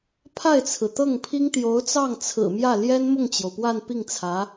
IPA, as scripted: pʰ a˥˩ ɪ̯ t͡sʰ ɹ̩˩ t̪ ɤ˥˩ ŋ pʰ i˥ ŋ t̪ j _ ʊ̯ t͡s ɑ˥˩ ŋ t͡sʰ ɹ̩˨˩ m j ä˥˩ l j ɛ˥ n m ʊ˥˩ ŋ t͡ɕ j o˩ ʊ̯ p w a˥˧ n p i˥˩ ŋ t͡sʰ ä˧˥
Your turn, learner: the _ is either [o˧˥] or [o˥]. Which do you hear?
o˧˥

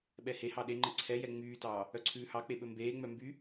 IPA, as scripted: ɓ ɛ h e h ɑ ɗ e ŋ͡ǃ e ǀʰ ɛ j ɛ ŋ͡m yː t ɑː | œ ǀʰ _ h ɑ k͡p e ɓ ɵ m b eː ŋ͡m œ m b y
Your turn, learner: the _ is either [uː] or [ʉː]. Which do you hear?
ʉː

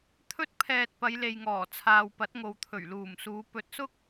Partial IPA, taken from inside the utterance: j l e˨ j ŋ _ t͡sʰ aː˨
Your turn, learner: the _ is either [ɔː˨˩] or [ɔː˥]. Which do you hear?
ɔː˨˩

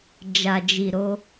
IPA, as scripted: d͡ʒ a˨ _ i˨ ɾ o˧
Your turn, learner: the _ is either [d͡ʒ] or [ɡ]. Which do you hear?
d͡ʒ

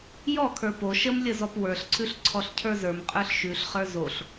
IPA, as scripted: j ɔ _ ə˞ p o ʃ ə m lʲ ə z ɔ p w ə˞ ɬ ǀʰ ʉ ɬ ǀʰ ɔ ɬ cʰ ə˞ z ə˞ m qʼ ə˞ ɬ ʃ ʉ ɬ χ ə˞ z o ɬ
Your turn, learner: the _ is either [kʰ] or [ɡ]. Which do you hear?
kʰ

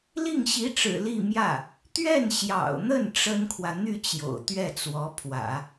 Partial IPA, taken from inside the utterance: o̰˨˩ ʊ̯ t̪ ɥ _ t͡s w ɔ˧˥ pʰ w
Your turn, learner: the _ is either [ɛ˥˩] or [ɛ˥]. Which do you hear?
ɛ˥˩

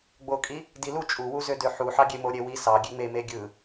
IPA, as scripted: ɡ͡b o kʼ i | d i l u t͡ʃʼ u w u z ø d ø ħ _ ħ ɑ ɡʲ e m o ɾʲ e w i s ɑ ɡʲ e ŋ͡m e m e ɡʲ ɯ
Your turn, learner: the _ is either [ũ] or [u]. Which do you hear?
u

